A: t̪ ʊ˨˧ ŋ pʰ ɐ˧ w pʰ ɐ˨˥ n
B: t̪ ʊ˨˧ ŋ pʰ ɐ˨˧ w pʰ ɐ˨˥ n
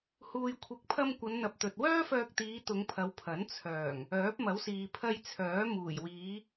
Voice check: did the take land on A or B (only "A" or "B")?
B